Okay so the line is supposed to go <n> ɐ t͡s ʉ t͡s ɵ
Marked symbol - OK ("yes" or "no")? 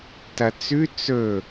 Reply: no